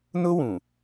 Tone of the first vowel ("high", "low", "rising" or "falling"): high